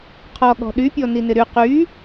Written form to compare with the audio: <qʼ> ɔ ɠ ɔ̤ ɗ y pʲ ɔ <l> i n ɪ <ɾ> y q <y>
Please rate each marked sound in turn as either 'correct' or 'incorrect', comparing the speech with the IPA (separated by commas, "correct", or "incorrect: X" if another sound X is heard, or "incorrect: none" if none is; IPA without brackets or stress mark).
incorrect: qʰ, incorrect: n, correct, correct